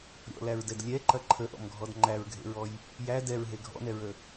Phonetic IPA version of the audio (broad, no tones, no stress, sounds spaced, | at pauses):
ɾʲ ɔ̰ l æ ɹ d ɛ d lʲ ɛ ǃ ɐ ǃʰ ə ʔ ɔ̰ m ɡʱ ɔ d ŋ͡ǃ æ ɹ ɡʱ ḛ ɹ ɔ j | j æ d ɛ ɹ ɦ e ɡʱ ɔ̰ n ɛ ɹ ə